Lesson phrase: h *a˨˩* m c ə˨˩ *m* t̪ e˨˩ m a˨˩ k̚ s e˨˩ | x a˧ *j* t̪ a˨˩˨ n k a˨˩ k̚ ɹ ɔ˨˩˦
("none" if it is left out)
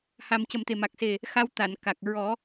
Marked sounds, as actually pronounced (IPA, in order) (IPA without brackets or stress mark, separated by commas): a˨˩, m, w